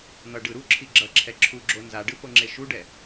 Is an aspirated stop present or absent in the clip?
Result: present